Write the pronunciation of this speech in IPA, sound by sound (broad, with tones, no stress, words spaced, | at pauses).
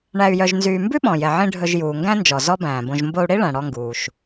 ɳæ˧y̯jœ˧ʒnzyː˧ mbʉ˥ɓɔ̃˩jɛ˩ʕĩ˧ ɖʱɵ˧ʒ juː˩ŋɡæ̃˥nd͡ʒɔ˩ zɔ˥bæ̃ː˩bõ˧ʒ mbo˧u̯ɽi˥ɭæ̃˩ ɽɔ˧ŋɡuː˩ʃ